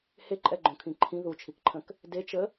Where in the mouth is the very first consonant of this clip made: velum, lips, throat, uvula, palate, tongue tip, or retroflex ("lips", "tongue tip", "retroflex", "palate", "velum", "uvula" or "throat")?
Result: throat